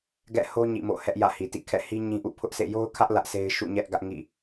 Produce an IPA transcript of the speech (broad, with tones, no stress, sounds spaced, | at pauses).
ɡ ɛ̰˦˨ h o˦ ɲ ḭ˦˨ m o̰˦˨ h ɛ˦ ʔ j ä̰˦˨ h i˨ t ḭ˦˨ kʰ ɛ̰˦˨ h i˦ ɲ ĩ˦ ʔ ṵ˦˨ pʰ ʊ˦ ʔ s ḛ˦˨ j o˦ ʊ̯ kʰ ä˦ ʔ l ä˦ ʔ s e˦ ɪ̯ ʃ ṵ˦˨ ɲ ɛ˦ ʔ ɡ ä˦ ʔ ŋ ḭ˦˨